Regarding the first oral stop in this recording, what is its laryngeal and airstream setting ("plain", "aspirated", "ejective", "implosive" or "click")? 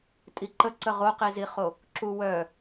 ejective